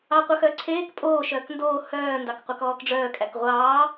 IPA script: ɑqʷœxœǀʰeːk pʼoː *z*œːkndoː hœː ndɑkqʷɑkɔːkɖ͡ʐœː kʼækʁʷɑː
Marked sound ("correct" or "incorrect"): incorrect